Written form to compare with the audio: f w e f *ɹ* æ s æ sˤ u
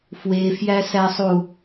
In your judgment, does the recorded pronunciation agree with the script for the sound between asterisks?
no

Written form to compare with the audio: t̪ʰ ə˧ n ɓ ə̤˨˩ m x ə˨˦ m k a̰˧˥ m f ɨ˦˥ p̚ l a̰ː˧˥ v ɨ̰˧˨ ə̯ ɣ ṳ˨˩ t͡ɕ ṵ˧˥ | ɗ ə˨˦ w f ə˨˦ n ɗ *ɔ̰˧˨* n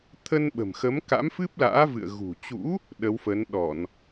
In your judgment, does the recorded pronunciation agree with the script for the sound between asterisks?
no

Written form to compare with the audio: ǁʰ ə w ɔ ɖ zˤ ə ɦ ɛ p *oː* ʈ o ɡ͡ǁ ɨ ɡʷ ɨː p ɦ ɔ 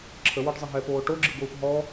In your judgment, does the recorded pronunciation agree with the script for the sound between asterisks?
yes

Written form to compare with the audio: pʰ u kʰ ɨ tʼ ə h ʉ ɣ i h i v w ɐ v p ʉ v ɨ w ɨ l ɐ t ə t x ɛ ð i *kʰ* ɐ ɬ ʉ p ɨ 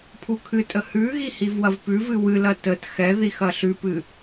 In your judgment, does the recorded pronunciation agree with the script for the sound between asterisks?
no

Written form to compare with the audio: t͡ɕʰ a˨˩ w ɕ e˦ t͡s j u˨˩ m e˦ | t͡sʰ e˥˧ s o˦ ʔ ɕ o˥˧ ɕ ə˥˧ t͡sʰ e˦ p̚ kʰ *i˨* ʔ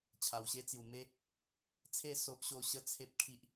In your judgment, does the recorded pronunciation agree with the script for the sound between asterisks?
no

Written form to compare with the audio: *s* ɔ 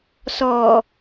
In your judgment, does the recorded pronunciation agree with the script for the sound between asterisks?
yes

